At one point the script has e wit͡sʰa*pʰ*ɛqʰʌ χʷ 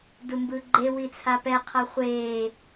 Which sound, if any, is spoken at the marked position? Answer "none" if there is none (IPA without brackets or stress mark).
p